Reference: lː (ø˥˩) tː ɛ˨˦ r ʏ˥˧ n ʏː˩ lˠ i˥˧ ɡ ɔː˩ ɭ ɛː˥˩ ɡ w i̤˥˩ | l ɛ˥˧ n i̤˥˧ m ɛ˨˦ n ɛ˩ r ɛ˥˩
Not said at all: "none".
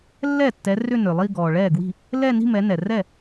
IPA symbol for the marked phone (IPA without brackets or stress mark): ɛ˥˩